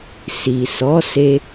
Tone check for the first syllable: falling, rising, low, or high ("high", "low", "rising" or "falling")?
low